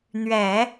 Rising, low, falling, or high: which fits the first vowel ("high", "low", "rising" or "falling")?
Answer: low